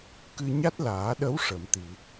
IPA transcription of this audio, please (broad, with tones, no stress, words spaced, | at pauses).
kɨ˧ɲa˦˥t̚laː˨˩˦ɗə˧˥w ʂə˨˩˨mt̪i˨˩˨